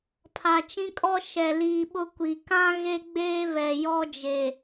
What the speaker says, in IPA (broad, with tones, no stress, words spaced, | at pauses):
pʰaː˨t͡ʃĩ˦kʼɔ˦ ʃɛ˨liː˨ ɓʊ˦kʷi˨ kã˦ ɣe˦ɡ͡beː˦βɛ˨ jɔ˦d͡ʒe˨